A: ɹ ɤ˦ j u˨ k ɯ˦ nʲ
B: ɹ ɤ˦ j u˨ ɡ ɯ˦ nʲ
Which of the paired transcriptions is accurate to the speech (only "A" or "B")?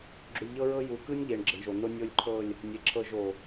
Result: A